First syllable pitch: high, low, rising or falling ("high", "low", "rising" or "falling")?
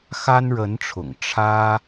high